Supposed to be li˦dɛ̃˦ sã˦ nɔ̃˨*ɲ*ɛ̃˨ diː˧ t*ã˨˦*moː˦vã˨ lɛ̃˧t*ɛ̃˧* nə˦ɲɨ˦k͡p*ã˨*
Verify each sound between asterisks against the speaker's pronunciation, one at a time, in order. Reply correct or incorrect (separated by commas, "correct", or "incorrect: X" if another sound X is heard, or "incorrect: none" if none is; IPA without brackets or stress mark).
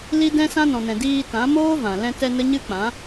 incorrect: n, correct, incorrect: ɛ˧, incorrect: ã˨˦